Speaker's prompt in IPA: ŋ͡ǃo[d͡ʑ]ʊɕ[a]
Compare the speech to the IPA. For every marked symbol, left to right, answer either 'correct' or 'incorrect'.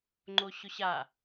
incorrect: ɕ, correct

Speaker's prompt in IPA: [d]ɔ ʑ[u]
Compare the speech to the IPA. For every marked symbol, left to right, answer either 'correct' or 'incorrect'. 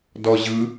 correct, incorrect: ɯ

